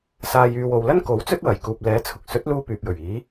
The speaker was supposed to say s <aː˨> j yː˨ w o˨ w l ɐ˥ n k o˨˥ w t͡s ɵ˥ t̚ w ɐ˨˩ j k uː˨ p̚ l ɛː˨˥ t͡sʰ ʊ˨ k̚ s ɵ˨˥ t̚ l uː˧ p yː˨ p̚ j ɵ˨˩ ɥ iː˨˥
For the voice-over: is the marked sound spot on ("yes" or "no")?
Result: yes